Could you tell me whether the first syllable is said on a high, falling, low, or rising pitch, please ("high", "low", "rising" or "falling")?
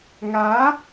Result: rising